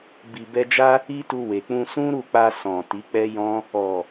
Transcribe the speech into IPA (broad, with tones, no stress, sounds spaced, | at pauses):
b i˨ b ɛ˧ d͡ʒ a˦ | i˦ t u˧ w e˨ k͡p ũ˧ s ũ˦ ɾ u˦˨ k͡p a˧ s ɔ̃˨ t i˨˦ k͡p ɛ˦ j ɔ̃˦ | ɔ˨